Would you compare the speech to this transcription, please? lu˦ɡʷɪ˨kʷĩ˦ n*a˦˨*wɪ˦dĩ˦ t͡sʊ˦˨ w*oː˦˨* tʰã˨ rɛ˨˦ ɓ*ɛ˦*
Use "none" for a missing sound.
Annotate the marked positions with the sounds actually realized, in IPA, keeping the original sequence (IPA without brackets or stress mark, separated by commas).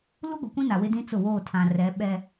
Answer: a˨, oː˦˨, ɛ˦